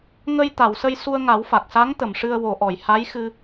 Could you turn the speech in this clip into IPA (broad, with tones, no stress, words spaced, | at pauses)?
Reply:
ŋə˧j t̪a˨˩˨wsə˧j su˧ə̯ŋa˨˩˦wfa˨˩k̚sa˧˥ŋ t̪ə˨˩˨mʂɨ˧ə̯wo˨˩˦ʔɔ˨˩˨j ha˧˥jxɨ˧